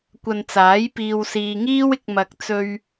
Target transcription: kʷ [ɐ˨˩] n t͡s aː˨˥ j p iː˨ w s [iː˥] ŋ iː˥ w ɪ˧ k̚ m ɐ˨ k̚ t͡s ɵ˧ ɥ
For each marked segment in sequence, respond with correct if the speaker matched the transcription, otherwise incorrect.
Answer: incorrect: ɐ˧, incorrect: iː˨

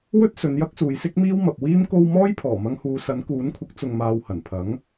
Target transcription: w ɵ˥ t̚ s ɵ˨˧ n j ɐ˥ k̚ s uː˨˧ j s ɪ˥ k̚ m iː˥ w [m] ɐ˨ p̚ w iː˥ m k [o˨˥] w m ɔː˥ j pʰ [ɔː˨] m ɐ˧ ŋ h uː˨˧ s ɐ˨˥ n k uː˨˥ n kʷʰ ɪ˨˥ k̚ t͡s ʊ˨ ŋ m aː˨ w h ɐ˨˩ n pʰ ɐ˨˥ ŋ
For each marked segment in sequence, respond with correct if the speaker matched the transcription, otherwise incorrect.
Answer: correct, incorrect: o˧, incorrect: ɔː˨˩

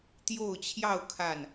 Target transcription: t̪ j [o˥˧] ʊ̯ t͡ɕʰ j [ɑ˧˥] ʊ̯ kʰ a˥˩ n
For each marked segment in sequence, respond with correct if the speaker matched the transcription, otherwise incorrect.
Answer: correct, incorrect: ɑ˥˧

